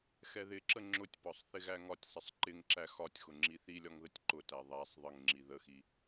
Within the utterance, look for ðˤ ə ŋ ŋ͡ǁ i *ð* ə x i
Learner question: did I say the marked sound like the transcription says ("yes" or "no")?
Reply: yes